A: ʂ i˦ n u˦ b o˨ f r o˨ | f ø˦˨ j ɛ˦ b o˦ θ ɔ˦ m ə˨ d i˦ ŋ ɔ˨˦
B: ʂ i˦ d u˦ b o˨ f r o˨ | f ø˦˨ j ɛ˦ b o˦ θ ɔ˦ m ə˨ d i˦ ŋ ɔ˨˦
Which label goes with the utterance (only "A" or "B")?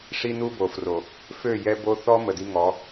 A